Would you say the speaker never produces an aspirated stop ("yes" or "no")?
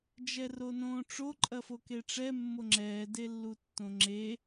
yes